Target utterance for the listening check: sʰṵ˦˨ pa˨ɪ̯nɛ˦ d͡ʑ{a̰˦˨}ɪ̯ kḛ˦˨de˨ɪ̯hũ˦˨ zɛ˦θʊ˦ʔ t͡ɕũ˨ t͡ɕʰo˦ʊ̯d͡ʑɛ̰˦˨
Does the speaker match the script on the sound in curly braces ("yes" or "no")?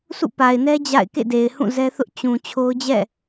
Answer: yes